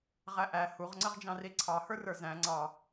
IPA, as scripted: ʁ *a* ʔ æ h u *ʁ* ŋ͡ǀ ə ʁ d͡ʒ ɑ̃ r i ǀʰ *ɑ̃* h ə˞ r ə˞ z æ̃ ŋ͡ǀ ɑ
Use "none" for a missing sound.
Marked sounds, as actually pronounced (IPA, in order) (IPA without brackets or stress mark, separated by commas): æ, ʁ, ɑ